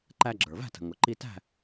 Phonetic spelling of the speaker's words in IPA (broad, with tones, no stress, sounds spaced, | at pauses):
ǃ æ˧ ɡ͡ǁ ə˞˩ v æ̤˥˨ t ə̤˩ ŋ ʊ˩ ǃ i˧ t æ̤˥˨